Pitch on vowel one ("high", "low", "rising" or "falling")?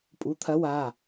rising